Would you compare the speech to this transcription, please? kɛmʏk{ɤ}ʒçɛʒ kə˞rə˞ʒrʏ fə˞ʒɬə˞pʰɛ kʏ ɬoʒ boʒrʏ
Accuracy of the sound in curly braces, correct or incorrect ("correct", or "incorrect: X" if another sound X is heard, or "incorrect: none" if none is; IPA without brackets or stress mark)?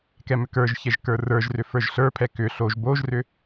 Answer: incorrect: ə˞